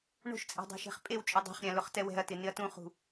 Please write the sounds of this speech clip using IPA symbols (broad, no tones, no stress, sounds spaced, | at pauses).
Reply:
ɳ o̤ ʃ t͡sʼ ɛ̤ dˤ a̤ ʃ ɛ̤ χ pʼ e w t͡ʃʼ ʊ dˤ ɛ̤ χ ɾʲ ã l ʊ χ t ɛ w ɛ̤ ɐ̯ t ɪ n ɪ ɐ̯ t ũ χ ṳ